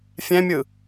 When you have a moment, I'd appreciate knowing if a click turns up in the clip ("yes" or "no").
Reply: no